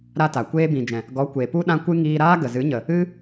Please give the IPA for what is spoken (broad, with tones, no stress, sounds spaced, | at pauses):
ɾ a˧ t a˨ kʷ eː˧ b ĩ˨ d͡ʒ ɛ̃˨ | ɡ ɔ˨˦ kʷ e˨ p u˦ ɗ ã˦ kʷ ɨ˦ ŋ iː˧ ɾ aː˦ ɡ ə˨ z ɨ˨˦ ɲ ə˨ | ɨ˦